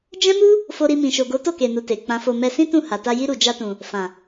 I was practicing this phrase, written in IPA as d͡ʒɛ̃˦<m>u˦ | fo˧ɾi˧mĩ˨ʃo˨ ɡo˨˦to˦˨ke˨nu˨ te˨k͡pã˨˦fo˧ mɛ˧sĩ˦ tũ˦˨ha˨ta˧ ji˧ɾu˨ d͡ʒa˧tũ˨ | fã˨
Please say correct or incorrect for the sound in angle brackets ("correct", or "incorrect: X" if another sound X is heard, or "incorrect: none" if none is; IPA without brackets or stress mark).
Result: correct